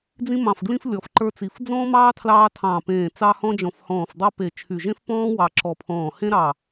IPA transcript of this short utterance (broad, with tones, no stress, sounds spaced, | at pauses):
d͡z ĩ˧ m ɑ̃˨˩ f ɡ l ĩ˧ f lʲ ɔ˨˩ f ǃ ə˞˧ t͡s i˨˩ f d͡z ɔ̃ː˧ m ɑː˧ tʰ l ɑː˧ tʰ ɑ̃˨˩ p ẽː˨˩ t͡s ɑ˧ h ɔ̃˧ d͡ʒ ɔ̃˨˩ f h ɔ̃ː˨˩ f dˤ ə˞˧ p e˨˩ t͡ʃʰ y˨˩ ʒ ẽ˧ f p ɔ̃ː˧ w ɑ˨˩ ǁ ɔ˨˩ pʰ ɔ̃ː˨˩ h ẽ˧ ɾ ɑ˨˩